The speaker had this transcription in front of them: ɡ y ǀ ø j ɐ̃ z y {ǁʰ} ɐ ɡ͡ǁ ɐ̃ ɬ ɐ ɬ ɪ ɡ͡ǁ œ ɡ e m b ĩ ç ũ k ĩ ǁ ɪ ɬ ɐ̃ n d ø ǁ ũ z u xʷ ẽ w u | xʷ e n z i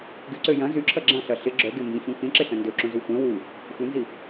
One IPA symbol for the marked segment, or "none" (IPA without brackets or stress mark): ǁʰ